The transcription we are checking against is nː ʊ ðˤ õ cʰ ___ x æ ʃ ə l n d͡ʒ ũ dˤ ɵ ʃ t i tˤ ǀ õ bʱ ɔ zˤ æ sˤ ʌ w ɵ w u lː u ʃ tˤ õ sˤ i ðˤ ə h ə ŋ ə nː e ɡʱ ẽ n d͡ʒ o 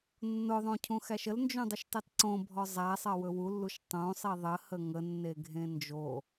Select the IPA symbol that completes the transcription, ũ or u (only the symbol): ũ